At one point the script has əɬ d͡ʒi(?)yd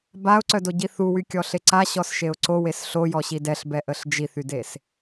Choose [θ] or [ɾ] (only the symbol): θ